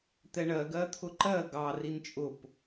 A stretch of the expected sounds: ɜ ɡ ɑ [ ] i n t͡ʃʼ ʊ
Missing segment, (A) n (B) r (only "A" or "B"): B